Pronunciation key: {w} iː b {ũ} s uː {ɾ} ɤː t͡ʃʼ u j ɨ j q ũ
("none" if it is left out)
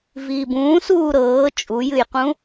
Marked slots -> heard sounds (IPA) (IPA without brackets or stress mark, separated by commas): v, ũː, ɾ